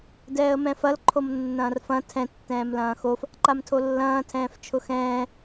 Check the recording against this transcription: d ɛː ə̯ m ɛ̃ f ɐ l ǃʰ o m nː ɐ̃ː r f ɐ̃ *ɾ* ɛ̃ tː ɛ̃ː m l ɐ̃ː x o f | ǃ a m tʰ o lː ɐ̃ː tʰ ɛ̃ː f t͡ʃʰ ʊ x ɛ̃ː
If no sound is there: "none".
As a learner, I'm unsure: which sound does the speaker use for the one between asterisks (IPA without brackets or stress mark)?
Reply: tʰ